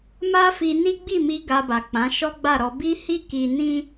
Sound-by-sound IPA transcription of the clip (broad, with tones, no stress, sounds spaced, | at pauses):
m a˦ f i˧ n i˦ ɡ͡b i˦˨ m i˧ ɡ a˧ b a˨ k͡p ã˨˦ ʃ ɔ˦ ɡ͡b a˦˨ ɾ ɔ˧ b i˦ h i˦ k i˧ n ĩ˦